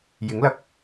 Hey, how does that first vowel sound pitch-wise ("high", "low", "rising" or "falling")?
rising